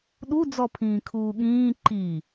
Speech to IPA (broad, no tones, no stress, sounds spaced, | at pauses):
ɗ u d͡z ɔ pʰ ĩː kʰ uː ɠ ĩː ǃ i